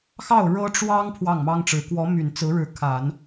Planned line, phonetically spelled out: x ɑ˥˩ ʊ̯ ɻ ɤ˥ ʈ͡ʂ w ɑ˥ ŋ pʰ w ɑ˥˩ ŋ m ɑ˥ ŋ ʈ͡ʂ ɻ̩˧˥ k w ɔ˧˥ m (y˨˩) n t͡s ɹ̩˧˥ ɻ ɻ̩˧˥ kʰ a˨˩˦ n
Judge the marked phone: correct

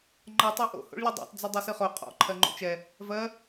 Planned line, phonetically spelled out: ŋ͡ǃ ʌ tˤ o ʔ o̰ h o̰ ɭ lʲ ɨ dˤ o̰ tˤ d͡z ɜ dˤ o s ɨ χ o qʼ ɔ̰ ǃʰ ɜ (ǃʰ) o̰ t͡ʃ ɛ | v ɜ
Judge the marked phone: incorrect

